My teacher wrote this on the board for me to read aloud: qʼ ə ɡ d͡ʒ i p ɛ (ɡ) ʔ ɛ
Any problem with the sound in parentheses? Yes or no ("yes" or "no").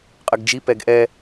no